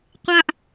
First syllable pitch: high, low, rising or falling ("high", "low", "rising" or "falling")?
high